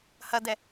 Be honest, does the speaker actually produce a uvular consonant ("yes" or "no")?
no